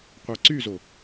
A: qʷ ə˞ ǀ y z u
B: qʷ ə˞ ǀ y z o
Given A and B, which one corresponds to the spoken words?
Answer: B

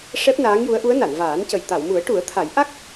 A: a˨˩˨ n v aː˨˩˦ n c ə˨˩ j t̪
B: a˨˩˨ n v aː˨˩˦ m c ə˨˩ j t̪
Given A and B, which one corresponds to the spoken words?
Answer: A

